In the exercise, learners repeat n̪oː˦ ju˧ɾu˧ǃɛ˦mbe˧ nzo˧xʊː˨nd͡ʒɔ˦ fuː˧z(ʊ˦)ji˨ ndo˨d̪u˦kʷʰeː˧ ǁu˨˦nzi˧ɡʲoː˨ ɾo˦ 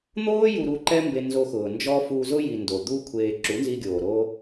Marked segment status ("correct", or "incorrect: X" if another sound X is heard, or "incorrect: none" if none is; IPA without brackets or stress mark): correct